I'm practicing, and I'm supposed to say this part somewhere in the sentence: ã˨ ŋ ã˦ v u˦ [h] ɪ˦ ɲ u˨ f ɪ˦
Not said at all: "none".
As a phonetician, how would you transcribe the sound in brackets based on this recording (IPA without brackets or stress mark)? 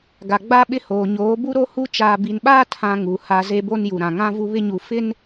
β